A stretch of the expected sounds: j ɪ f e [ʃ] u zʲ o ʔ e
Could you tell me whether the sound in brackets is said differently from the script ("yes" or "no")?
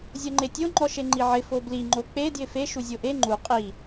no